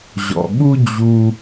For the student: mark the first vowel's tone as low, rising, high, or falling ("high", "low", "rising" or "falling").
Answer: low